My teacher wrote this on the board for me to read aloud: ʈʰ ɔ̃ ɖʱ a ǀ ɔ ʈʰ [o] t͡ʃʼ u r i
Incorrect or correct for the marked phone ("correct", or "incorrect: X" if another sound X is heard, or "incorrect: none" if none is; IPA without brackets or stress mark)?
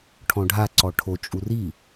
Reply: correct